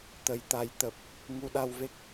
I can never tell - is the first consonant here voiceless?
yes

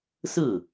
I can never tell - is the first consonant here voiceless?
yes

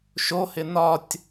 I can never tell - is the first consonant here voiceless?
yes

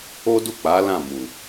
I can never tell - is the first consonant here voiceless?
no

